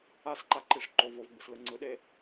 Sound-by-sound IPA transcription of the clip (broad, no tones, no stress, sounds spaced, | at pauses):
a s ǃ a ǃ i ʂ ǃ o v o v ɡ͡b ɯ s l ɯ ŋ͡ǀ ɯ ɗ e